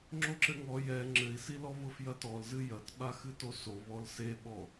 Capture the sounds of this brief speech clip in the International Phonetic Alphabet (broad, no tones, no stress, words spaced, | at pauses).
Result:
ŋ͡ǁoǁɘŋɔ jɛ ŋ͡ǁɘi̯silɔ βʊfjɐtɔlzɨ jɐtɓa xɨtoso βɔlseɓɔ